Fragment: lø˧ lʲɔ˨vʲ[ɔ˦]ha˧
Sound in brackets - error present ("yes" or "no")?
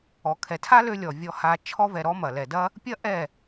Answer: yes